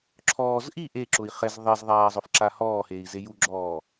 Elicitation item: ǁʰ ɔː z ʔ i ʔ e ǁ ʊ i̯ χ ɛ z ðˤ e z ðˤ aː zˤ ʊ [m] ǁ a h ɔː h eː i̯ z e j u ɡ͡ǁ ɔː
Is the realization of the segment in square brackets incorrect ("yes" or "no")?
yes